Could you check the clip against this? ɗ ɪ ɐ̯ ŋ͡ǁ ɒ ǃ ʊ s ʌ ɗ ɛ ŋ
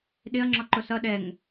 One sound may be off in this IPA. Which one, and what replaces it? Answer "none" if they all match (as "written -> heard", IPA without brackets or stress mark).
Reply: none